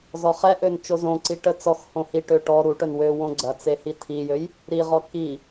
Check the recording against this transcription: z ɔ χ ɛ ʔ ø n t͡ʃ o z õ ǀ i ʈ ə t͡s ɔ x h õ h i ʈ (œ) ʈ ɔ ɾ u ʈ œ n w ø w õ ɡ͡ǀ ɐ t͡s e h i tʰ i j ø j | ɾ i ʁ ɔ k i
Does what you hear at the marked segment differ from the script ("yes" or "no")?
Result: yes